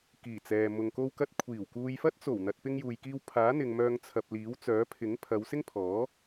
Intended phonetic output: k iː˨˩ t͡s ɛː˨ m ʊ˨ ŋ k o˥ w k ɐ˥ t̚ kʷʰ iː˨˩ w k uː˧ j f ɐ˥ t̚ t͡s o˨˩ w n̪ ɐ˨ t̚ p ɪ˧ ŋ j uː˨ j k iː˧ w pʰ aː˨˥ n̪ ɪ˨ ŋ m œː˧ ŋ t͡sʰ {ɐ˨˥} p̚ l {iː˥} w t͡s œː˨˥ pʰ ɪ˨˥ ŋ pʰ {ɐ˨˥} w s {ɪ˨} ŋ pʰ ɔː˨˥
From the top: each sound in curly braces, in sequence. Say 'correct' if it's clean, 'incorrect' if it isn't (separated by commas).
incorrect, incorrect, incorrect, incorrect